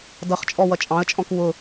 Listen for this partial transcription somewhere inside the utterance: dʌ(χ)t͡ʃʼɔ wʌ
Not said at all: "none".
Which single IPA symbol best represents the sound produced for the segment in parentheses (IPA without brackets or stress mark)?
χ